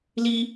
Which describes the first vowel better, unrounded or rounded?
unrounded